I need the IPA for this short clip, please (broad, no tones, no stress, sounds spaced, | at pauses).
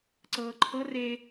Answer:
ǀ ɤː ǃʰ ɤ r e